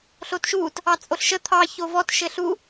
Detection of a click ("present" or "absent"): absent